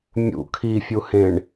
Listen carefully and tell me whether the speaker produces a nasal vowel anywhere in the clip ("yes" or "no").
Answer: yes